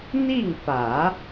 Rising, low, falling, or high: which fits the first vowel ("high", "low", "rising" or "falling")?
falling